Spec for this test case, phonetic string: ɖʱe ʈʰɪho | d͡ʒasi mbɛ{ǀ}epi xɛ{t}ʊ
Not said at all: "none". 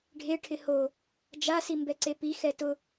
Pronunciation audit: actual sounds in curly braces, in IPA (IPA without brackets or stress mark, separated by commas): ǀ, t